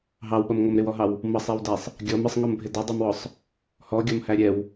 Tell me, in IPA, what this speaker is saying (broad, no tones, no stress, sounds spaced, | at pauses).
ɦ ɑ w ɓ ʌ m ŋ ɔ m ɾ ɪ w ɔ ɦ ɑ w | m ʌ sˤ ɛ w d æ sˤ | ɡʲ ɔ m ɪ sˤ ŋ ɔ m bʱ ɪ d ʌ dˤ ɛ m w ɔ sˤ | h ɔ ɡʲ ɔ m h æ ɾʲ ɛ w